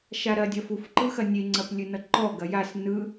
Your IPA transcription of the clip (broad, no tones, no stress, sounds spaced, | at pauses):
ʃ a ɾ ɐ dʲ ɐ f u f ǃ ɯ x ɐ nʲ e ŋ͡ǀ ɐ p lʲ ɨ n ʌ ǃ ɔ ɡ ɐ j a s n ɯ